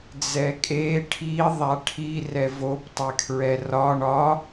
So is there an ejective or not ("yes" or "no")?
yes